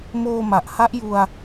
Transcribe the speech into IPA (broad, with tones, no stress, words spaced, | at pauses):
moː˧ma˨˩ʔ ha˦˥ʔju˧a̯